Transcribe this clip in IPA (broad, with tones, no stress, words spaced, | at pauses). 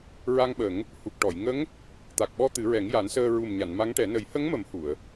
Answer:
ɹa˧ŋɓə˨˩˦ŋ | hu˨˩k̚ʈɔ˨˩˨jŋə˧˥ŋ | t̪a˨˩k̚ɓɔ˧ t̪ɨ˨˩˦ɹɛ˨˩˦ŋja˨˩˦nsəː˧ ɹu˨˩m ɲa˨˩˨n ma˧˥ŋʈɛ˨˩˦ nə˨˩˦jhə˧˥ŋmə˨˩˦m hu˨˩˨ə̯